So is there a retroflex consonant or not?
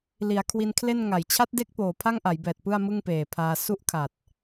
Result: no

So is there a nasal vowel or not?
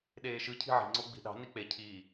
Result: no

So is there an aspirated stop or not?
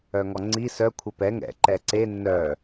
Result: yes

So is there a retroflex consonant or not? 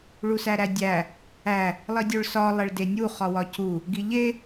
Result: yes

